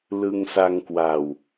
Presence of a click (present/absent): absent